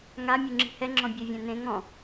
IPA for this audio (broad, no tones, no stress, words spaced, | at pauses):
ŋa mʲuŋ͡ǁi̤hɛŋ͡ǁɔ̃ bʲevʲɛ̃nẽ ŋɔ̃